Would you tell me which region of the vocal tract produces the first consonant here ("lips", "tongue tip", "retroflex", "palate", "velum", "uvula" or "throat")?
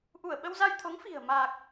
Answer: throat